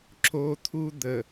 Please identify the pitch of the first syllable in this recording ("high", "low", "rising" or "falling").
high